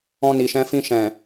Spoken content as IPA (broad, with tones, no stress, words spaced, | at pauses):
ɔ̃˧ni˨ʃɛ̃˧fĩ˧ ʃɛ̃˨